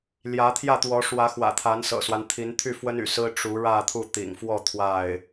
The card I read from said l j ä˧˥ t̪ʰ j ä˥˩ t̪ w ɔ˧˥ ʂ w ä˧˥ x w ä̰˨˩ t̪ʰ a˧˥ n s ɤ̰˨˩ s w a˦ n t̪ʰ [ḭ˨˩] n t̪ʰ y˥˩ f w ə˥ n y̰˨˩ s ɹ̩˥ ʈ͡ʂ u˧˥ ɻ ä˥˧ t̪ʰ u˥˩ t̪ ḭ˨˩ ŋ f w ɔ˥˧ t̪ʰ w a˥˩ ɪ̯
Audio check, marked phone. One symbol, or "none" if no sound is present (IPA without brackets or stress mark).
i˧˥